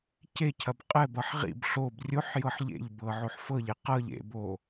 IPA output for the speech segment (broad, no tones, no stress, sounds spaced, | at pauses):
c e cʰ ɐ b qʼ ɛ b ʌ ħ ʁ ḭ b ɬ o b rʲ o ħ j ɤ ħ ʎ ḛ ʎ b ɤ ʕ o ħ f ɤ ʎ e q ɤ ʎ ḛ b o